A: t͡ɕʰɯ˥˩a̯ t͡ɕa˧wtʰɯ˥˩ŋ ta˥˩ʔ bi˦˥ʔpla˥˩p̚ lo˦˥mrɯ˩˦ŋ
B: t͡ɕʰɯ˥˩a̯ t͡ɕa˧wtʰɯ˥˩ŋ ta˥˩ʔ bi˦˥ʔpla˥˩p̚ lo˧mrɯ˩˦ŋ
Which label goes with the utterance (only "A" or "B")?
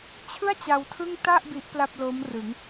A